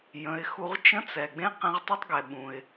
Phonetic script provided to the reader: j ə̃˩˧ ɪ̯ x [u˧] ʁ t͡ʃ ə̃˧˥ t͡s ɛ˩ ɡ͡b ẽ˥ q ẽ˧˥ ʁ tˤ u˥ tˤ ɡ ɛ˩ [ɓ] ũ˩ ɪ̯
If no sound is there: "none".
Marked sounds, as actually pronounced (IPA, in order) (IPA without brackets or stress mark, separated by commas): u˧, ɓ